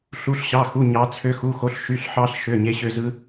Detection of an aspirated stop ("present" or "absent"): present